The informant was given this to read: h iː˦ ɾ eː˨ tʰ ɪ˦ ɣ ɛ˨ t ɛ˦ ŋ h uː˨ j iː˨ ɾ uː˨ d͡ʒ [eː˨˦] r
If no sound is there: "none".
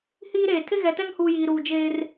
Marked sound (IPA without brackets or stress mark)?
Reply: eː˦